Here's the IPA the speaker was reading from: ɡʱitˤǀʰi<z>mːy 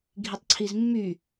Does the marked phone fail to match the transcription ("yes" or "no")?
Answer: no